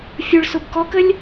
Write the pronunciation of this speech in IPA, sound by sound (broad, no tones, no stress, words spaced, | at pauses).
fʲʊɭsʊb kɔkəlʲ